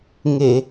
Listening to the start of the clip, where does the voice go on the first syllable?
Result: low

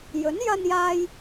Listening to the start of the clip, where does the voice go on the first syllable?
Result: rising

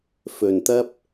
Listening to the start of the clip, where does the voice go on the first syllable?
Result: low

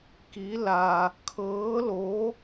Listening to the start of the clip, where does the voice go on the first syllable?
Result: rising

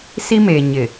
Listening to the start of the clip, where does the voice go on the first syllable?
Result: high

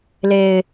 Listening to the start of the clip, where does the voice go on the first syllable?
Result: low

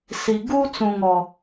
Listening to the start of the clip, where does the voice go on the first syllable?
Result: low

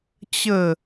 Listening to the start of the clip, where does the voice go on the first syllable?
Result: falling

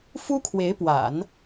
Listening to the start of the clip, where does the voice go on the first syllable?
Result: high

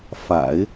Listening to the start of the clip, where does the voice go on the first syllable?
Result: low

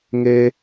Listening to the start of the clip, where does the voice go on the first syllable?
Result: high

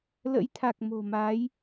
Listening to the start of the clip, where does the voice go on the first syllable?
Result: rising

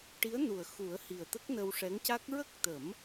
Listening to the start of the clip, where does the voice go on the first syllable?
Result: rising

